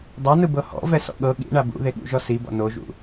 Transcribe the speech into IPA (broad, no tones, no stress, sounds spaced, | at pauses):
dˤ a n ɯ b ɤ h ɔ̰ v ɛ s ɔ̰ ɠ ɤ ɠ ḭ ɳ a b ṵ ð e ɠ ṵ ʒ ɔ s i b ɔ̰ n o ʒ ṵ